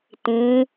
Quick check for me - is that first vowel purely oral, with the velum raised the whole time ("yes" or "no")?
no